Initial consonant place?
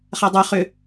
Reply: uvular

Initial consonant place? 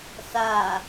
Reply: alveolar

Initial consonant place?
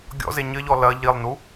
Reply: velar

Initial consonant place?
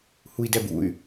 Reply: glottal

